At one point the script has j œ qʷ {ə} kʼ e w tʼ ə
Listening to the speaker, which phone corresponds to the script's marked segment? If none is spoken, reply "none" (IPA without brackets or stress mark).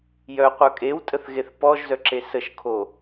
œ